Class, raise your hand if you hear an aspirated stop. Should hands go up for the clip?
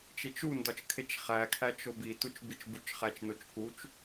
yes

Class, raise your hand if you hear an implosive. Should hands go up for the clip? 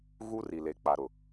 no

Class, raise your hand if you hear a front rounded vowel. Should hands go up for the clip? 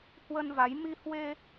no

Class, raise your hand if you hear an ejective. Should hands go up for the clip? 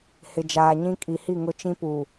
yes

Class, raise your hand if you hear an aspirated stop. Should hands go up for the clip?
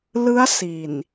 no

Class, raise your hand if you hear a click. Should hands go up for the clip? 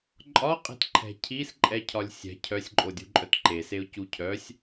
yes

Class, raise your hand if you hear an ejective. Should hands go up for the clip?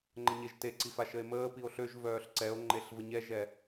no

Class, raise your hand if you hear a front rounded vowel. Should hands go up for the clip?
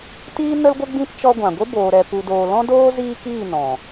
no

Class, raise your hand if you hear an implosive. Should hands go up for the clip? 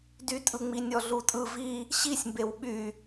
yes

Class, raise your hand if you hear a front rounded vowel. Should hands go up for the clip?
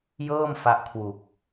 no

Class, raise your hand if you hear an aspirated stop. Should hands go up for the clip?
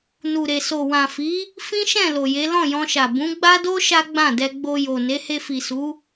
no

